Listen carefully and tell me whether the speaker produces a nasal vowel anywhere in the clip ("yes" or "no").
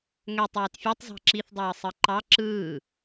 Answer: no